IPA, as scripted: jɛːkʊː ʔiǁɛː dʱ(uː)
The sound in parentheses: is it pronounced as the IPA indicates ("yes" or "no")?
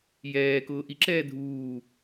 yes